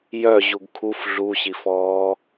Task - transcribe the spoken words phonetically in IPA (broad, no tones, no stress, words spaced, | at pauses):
jœ ʑuɡkʰuf ɮuɕifɔː